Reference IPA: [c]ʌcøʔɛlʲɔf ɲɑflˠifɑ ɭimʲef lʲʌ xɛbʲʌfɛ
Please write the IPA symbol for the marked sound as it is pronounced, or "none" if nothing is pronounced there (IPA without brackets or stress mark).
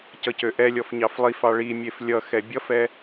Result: c